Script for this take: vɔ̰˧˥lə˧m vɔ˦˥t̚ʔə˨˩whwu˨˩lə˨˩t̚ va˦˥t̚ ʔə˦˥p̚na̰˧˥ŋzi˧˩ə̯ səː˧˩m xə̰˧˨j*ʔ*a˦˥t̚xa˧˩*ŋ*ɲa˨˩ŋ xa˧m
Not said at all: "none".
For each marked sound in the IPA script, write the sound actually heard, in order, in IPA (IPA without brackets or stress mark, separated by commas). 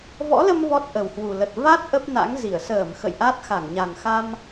ʔ, ŋ